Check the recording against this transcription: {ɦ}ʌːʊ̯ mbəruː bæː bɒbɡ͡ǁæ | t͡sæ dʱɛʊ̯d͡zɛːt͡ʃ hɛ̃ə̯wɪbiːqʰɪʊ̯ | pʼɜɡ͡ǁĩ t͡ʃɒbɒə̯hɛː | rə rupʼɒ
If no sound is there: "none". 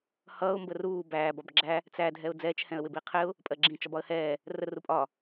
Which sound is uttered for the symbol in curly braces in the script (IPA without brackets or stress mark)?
h